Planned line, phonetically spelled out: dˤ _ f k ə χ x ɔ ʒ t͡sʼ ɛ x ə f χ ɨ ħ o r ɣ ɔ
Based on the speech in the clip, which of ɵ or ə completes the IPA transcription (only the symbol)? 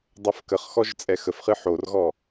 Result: ɵ